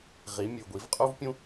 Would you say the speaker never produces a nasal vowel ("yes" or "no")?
no